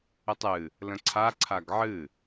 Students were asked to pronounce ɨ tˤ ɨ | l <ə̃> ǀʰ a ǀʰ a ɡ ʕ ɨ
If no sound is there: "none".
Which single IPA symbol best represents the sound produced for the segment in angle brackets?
ə̃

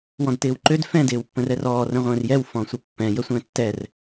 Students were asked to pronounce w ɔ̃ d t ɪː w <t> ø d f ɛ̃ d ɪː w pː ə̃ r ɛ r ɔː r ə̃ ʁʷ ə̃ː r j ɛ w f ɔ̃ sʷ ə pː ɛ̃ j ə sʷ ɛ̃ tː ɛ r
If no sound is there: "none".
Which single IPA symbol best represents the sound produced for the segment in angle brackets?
ǃ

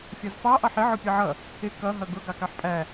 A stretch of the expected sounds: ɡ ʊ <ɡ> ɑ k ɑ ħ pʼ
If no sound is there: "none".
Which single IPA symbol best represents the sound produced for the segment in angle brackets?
ɡ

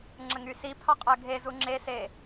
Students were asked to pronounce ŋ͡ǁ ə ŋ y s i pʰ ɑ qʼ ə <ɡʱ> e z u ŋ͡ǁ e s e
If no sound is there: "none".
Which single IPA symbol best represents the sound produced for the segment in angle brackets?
ɡʱ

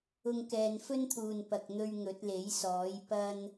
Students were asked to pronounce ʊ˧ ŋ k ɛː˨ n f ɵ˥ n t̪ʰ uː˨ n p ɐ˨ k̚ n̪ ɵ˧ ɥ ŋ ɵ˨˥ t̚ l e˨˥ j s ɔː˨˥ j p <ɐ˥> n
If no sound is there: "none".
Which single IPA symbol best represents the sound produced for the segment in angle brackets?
ɐ˥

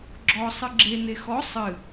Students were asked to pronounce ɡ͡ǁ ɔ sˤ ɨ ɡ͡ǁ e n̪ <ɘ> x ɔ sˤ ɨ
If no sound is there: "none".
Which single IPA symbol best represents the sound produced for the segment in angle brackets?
e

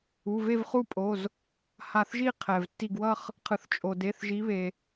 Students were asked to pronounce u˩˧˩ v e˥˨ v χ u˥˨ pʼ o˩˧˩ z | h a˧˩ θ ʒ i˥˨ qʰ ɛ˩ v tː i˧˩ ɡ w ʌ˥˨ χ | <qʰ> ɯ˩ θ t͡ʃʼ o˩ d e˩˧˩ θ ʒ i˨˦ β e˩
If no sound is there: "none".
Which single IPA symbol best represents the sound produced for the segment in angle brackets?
qʰ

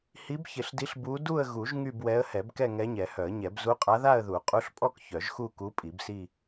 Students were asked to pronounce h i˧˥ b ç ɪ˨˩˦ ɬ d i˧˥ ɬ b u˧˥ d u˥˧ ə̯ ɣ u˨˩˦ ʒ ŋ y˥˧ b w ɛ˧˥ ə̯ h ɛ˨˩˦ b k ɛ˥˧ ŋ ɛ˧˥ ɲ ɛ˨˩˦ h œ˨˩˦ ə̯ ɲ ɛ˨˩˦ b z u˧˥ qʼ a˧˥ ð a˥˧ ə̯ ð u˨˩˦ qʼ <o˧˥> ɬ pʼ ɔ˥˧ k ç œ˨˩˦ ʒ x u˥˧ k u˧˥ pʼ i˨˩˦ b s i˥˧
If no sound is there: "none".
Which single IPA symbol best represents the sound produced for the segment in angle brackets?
u˧˥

